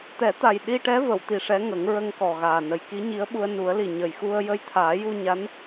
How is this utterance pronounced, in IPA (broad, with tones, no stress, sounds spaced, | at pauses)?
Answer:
t̪ ɛ˨˩˦ t̪ a˨˩ j ɗ i˧ ʈ ɛ˧˥ v ə˨˩˨ w t̪ i˨˩ ʂ ɛ˧˥ ŋ ə˨˩˦ ŋ ɹ ə˧ ŋ k ɔ˨˩ ɣ aː˨˩ n ə˨˩ j k i˧˥ ɲ i˧˥ ə̯ ɓ u˧ ə̯ n u˨˩˦ ə̯ l i˨˩ ɲ ə˨˩ j x u˧ ə̯ j ə˧ j t̪ʰ aː˨˩˦ j u˧ ɲ a˧˥ n